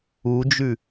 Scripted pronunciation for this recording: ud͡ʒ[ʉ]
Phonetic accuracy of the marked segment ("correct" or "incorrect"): correct